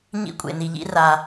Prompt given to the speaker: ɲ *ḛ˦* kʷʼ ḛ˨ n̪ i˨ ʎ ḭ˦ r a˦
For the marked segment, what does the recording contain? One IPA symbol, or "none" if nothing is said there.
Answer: ḭ˦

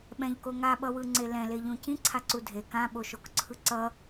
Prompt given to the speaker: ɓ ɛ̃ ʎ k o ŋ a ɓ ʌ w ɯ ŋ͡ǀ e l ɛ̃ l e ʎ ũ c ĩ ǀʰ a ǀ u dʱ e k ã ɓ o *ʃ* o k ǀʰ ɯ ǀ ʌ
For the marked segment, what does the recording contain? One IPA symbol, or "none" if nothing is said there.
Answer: ʃ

